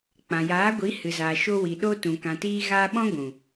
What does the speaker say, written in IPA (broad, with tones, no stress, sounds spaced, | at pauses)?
k͡p ã˨ j aː˨˦ ɡʷ i˨˦ h ɨ˨ z aː˨ ʃ o˧ w i˨ ɗ o˦ t ũ˨ k ã˨ t iː˧ ɣ aː˧ ɓ ɔ̃˦ ɡʷ ũ˨